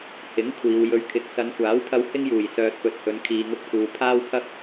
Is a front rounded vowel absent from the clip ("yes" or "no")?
no